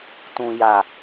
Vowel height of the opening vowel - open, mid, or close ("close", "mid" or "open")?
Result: close